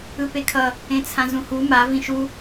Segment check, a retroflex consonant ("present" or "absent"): absent